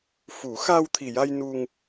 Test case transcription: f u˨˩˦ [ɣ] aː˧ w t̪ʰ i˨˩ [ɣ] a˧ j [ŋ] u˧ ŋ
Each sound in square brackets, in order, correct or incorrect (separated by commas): incorrect, incorrect, incorrect